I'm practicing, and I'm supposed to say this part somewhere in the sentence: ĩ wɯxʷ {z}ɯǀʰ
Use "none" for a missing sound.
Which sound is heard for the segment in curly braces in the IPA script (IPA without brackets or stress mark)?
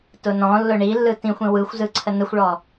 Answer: z